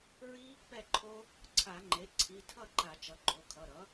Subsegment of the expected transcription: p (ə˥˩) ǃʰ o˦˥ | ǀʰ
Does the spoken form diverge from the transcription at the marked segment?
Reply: yes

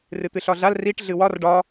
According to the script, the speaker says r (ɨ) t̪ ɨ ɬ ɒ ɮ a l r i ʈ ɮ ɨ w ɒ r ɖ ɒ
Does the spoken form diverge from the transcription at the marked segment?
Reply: no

